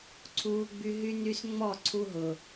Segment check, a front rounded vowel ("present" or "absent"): present